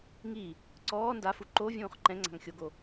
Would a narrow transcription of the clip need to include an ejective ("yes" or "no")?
no